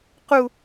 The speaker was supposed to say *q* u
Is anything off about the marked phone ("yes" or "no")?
no